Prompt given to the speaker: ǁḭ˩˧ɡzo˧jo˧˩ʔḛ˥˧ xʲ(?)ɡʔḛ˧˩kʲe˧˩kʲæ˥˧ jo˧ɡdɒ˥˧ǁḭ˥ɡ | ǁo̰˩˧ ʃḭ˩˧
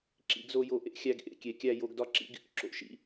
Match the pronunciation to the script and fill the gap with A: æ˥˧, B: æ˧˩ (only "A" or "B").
A